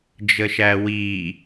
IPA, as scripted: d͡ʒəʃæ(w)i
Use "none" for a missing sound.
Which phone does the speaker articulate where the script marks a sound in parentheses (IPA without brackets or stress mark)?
w